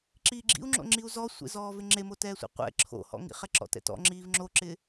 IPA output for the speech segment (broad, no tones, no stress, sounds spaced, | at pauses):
ǁ iː ɡ͡ǁ ḭ u̯ ŋ͡ǁ o̰ ŋ͡ǁ i u̯ z ɔ sʷ ḛ z ɔː v ɪ ŋ͡ǁ e m o t ɛː sʷ ḛ qʷ ɛ̰ ǁʰ o̰ h ɔ̰ ŋ ḭ χ ɛ ǁ ɔ̰ t ɛ̰ t ɔ̰ ŋ͡ǁ iː v ŋ͡ǁ o ǁ ɪ